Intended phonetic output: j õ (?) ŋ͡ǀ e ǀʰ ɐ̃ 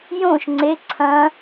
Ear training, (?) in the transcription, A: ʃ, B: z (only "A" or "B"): A